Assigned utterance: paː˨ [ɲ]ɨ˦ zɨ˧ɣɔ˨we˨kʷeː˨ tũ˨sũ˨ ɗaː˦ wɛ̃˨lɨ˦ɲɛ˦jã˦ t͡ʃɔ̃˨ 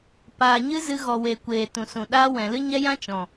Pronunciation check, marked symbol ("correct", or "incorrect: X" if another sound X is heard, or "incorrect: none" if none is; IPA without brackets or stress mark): correct